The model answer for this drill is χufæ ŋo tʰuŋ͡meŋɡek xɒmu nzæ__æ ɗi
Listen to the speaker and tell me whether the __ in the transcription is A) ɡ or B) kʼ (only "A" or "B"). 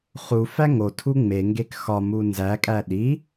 B